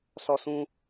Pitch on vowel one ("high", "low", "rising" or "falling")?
high